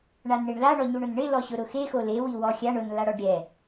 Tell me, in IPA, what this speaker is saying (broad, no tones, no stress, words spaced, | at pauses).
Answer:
ɳanɳiɳla ɳɔɲuɳʊnɳɪ lɔɕʊɾʊxe xole wiwɔxʲaɳ ʊn laɽɔɖɾʲɛ